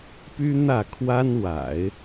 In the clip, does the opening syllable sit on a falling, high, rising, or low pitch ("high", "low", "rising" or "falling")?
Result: high